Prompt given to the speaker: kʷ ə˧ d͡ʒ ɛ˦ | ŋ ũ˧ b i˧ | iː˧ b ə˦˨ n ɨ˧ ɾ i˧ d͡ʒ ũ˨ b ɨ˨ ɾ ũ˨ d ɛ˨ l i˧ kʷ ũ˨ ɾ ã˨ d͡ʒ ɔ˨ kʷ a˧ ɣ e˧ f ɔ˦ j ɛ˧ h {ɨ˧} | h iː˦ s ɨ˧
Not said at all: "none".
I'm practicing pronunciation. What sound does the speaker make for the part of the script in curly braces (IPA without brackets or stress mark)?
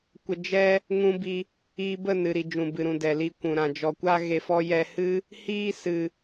ɨ˦